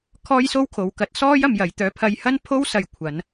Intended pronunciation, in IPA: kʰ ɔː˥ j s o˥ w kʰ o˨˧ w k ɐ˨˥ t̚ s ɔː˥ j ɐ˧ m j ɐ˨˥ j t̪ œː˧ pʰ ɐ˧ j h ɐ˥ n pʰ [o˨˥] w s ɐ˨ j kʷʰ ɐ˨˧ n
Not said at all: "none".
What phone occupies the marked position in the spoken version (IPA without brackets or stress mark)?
o˥